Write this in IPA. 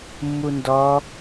mː u n d ɔ

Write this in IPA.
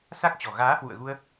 s a˦˥ k̚ t͡ɕ ɔ̤˨˩ ɣ aː˨˦ h w ṵ˧˨ ə̯ ɣ u˧ ə̯

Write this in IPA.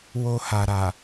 w o˧ h a˨ ɾ a˨

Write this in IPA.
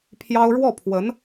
pʰ j ɑ˥ ʊ̯ ɻ w ɔ˥˩ pʰ w ə˧˥ n

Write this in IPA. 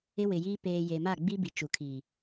ɪ˦ w ɪ˨ j iː˦ p eː˨ j e˨ m a˦˨ ɡ͡b i˦ b i˨ t͡ʃ u˨ kʰ i˨

